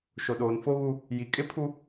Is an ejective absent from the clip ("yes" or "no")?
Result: no